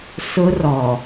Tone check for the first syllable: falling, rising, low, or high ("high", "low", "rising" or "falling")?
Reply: high